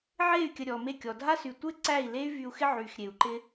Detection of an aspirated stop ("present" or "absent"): absent